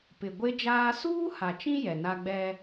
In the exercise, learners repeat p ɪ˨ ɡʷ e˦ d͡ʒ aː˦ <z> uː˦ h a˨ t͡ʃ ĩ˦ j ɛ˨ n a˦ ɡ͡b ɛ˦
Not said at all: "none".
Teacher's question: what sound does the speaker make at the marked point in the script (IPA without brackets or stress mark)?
s